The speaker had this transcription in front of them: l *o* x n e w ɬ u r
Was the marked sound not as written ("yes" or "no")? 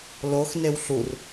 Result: no